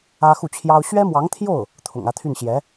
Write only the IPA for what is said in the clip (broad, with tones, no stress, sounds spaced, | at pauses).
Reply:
ä˥ x u˥˩ t͡ɕʰ j ɑ˥ ʊ̯ ɕ ɥ ɛ˥ m w ɑ˧˥ ŋ t̪ʰ j o˥˩ ʊ̯ | t̪ʰ ʊ̰˨˩ ŋ ä˥˧ t̪ʰ y˥˩ n ɕ j ɛ˧˥